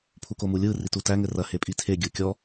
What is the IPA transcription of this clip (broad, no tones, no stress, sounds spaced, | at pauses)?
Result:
pʰ u k o m u lʲ ɯ r i t u t æ ŋ ɘ r ɐ h e pʼ i tʰ e ɡʲ ɯ kʲ ɔ